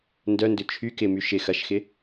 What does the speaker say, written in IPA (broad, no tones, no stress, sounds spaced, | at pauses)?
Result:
n d œ n d ʏ t͡ʃʰ y k ɪ m y ʃ ɪ x ɐ ʃ x ɪ